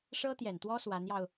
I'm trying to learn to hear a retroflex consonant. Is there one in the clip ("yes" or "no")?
yes